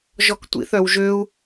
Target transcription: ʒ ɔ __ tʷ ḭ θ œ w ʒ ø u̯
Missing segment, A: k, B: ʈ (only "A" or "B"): A